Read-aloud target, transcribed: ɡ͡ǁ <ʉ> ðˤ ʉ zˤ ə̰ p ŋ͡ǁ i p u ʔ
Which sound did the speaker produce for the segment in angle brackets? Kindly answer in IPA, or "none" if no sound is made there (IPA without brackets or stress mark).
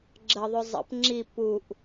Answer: ə